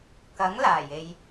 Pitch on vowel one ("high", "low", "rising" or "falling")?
rising